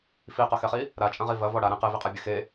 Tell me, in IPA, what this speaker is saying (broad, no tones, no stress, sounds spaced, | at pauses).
f i q ɐ x ɛ χ i | ɾ a t͡ʃʼ ɐ̃ ʁ i v ɐ v ɔ ɽ a ɾ ẽ q e v i qʼ ɛ bʲ ɘ x e